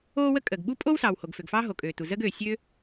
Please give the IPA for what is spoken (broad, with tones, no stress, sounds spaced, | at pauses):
oː˥ w ə˥ kʼ əː˩ ɡ ɓ u˥ pʼ o˥ w s ɑː˩ w h o˩ ɡ f ø˩ ɡ f ɑː˥ ɦ o˩ kʼ øː˩ t u˩ z əː˥ ɡ øː˩ sʲ ø˥